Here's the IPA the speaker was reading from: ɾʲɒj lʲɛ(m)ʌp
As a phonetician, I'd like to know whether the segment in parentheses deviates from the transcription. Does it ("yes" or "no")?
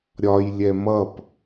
no